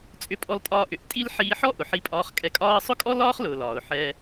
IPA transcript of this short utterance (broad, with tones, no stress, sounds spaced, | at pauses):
t͡sʼ ʏ˧ pʼ ɔ˧ l tʼ ɒː˧ ʔ ʏ˩ ʔ tʼ i˥ l ħ iː˧ ħ ɔ˥ ʔ ʊ˩ ħ i˧ pʼ ɒː˧ χ kʼ ɛ˧ kʼ ɒː˥ ə̯ sˤ ʊ˥ kʼ ɔ˥ l ɒː˥ χ l ʊː˩ l ɒː˩ ʊ̯ ħ ɛː˧